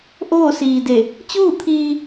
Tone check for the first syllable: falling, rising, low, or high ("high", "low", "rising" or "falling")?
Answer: falling